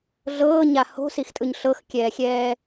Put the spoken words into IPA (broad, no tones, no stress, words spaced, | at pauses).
ɮɤːɲa ho̤sixtʼɯɲ ɬɤxkʲɛːxʲɛː